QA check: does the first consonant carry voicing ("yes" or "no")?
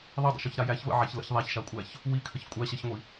yes